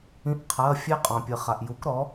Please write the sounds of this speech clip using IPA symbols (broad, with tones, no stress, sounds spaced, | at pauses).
ĩ˧˥˧ ʔ qʰ ɐː˧˥˧ fʲ e˦˥ qʼ ɔ̃˨ pʲ ɨ˨ χ a˨ ʔ j u˨˥ k ɾ ɔ˨˥